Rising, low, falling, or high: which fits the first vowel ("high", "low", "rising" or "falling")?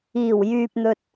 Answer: low